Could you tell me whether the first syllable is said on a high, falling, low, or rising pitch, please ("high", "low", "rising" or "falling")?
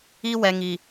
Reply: high